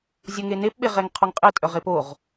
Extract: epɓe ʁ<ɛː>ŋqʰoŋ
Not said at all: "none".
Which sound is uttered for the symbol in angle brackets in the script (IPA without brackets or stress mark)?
ɛ